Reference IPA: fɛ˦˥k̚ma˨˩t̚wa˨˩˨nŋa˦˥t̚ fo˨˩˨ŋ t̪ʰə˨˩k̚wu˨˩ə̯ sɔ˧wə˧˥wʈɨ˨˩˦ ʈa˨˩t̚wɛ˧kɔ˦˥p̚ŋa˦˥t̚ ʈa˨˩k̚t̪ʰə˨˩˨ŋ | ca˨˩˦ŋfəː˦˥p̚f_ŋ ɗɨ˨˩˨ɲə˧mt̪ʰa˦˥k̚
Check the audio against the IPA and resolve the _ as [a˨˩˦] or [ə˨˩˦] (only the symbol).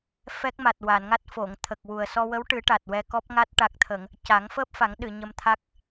a˨˩˦